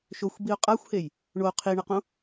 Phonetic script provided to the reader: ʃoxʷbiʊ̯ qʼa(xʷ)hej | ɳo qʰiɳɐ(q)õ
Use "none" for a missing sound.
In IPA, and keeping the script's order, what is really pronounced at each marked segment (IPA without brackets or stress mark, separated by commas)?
xʷ, q